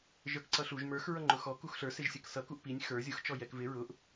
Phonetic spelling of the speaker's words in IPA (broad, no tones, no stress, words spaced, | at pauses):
ʒə˞kǀʌɬuʒ mə˞x ɹʌŋ͡ǃʊxɔ kuxɬə˞ sɪʒsʲəksʌ kuʔpinʲ xə˞ zʲʊx t͡ʃɔjɛkvɪ ɹʊʔ